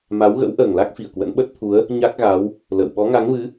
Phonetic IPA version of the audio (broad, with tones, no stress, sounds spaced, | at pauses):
m a˨˦ w ɣ ə̰˧˥ w ʔ əː˨˩ ŋ l a˦˥ k̚ f i˧˩ ə̯ k w ə̰˧˥ n ɓ ə˦˥ t̚ t̪ʰ u˨˦ ə̯ | ɲ a˦˥ k̚ ɣ a˨˦ w | l ə̰˧˨ w ɓ ɔ˨˦ ŋ a˨˦ ŋ v ɨ˨˦